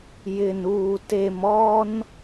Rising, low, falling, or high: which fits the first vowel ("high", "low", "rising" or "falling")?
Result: low